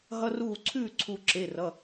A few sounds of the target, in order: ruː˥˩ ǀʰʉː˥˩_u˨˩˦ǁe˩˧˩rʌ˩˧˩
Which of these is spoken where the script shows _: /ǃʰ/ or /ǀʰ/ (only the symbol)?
ǀʰ